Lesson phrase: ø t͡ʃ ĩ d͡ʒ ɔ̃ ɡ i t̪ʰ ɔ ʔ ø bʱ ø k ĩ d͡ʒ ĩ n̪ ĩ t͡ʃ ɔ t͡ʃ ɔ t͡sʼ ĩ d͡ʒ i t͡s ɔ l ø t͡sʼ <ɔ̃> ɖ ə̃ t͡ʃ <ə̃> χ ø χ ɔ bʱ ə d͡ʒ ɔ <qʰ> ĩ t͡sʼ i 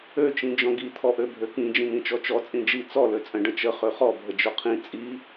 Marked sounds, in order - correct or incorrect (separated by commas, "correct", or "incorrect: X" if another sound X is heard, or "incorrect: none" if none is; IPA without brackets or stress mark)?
incorrect: ə̃, incorrect: ə, correct